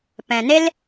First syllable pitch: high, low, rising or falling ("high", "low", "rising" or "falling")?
low